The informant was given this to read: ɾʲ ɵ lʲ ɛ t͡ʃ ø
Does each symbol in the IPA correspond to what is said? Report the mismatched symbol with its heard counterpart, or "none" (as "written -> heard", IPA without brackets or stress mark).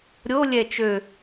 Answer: ɵ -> o